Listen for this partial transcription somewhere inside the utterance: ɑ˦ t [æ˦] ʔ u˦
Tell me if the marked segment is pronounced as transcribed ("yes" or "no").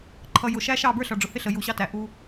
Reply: no